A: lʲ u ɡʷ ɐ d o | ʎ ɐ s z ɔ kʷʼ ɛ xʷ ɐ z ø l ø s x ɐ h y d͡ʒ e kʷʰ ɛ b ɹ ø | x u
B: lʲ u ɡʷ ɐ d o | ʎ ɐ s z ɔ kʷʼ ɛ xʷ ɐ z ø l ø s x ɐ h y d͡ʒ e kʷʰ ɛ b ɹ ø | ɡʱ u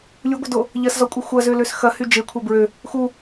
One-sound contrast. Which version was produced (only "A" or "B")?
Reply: A